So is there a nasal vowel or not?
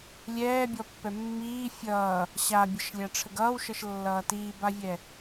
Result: no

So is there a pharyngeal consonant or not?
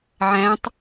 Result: yes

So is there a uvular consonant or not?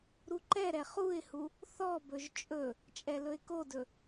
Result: yes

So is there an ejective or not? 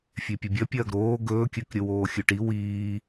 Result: no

